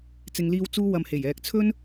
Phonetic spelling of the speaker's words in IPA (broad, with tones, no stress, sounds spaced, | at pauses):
t͡s ɪ˨ ŋ l iː˧ w t͡s uː˥ w ɐ˧ m h e˨˩ j ɛː˨ k̚ t͡sʰ ɵ˥ n